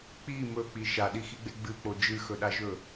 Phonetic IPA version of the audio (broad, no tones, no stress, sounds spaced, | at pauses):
k͡p i m ɵ k͡p i ʃ a ɗ i x i ɡ͡b e ɡ͡b ɨ k͡p o d͡ʒ ɨ x ɵ ɗ a ʒ ɵ